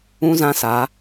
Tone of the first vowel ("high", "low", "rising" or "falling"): high